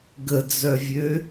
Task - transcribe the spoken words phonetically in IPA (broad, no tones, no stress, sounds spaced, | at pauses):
ɡ ə d͡z œ vʲ ø